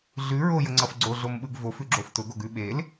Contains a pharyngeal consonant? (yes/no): no